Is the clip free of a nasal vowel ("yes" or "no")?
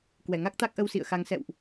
yes